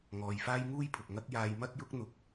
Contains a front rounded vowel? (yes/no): no